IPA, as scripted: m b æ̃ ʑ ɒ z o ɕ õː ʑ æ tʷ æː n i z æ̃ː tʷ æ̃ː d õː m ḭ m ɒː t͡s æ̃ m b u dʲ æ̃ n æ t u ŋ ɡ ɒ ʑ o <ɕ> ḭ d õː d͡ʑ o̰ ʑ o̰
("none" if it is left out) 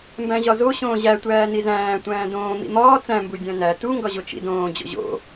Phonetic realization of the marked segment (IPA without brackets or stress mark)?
t͡ʃ